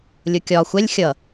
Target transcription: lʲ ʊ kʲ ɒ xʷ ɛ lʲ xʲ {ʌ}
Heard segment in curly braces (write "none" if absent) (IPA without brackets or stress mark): ʌ